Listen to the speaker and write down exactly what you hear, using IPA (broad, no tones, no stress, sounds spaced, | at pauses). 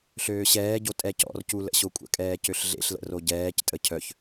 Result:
ɬ øː ɕ ɛː ɟ o tʼ ɛ c ɔ̰ r c u l ə̰ ɕ o kʷʼ ə̰ kʼ ɛː c ø ɬ ɮ ḛ ɬ l ə̰ r o ɟ ɛː c tʼ ə cʰ œ ç